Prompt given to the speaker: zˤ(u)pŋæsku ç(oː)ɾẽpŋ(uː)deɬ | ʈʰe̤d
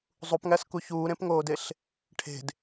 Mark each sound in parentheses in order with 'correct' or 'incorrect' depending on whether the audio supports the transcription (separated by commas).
correct, incorrect, incorrect